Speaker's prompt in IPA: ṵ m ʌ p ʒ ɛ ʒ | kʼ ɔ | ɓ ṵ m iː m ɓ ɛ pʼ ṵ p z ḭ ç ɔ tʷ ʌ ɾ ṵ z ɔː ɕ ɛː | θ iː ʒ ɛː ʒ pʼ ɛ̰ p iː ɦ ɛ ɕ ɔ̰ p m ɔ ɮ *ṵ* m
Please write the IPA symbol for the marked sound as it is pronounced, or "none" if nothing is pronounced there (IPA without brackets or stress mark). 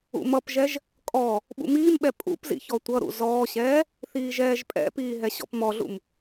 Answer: ṵ